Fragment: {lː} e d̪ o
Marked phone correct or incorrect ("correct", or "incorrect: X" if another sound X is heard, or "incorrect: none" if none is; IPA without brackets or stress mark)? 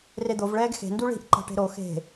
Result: incorrect: r